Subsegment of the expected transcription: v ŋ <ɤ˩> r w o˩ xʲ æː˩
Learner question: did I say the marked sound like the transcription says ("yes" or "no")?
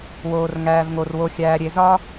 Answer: no